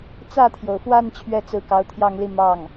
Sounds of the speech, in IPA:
t͡s ä˥˩ t̪ʰ j o˩ ʊ̯ f w a˥˧ n t͡ɕʰ ɥ ɛ˥˩ t͡s ɹ̩˧˥ k ɑ˧˥ ʊ̯ t̪ʰ j ɑ˥˧ ŋ l i˥˧ m ɑ˥˩ ŋ

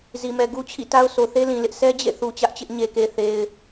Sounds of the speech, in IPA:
z i˨ m ɛ˨ ɡ u˦ t͡ɕʰ ḭ˦˨ t a˦ ʊ̯ s o˨ θ e˦ l ĩ˨ l ɪ˦ ʔ s ɛ˦ d͡ʑ ḛ˦˨ θ u˨ t͡ɕ ä˦ ʔ t͡ɕ ɪ˦ ʔ ɲ e˨ k e˨ θ e˨ ɪ̯

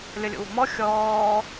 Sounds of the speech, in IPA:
lʲ ʌ lʲ o̰ w o̤ m ɔ xʲ ɔː

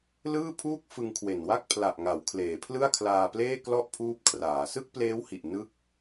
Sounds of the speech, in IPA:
l ɯː˥˩ pʰ uː˥˩ k̚ f ɯ˧ ŋ kʰ w e˨˩ n w a˥˩ k̚ pʰ l a˨˩ ʔ ŋ a˩˦ w kʰ l eː˩˦ pʰ l ɯ˥˩ a̯ kʰ l aː˧ p l eː˥˩ k l ɔ˥˩ ʔ pʰ uː˦˥ p̚ kʰ r aː˩˦ s ɯ˥˩ k̚ p l eː˦˥ w h i˨˩ ʔ n ɯ˦˥ k̚

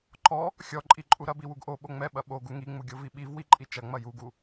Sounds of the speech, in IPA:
ǃ ɔ | xʲ ɔ ǃʼ i ǃʼ u ɾ ɐ b i w u ɡ ʔ o ɓ o ŋ͡m ɛ ɓ ɐ ɓ o ɡ u ŋ i ŋ͡m u ɡʲ o v i ɓ i v w i ǃʼ i t͡ʃ ɐ ŋ͡m ɐ j u ɡ u

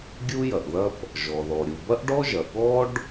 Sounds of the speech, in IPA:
ɡʲ u˥ j ɐ˩ ʔ ð ɐ˥ p | ʒ ɔ˩ ð ɔ˩ ɾʲ u˩ b ɐ˥ ʔ ɖ ɔ˥ ʒ ɐ˩ ɠ ɔ˥ ɖ

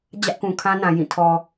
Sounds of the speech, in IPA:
d͡ʑ ä˦ ʔ k ũ˨ kʰ ã˦ n ã˨ j ĩ˦˨ tʰ ɔ˨

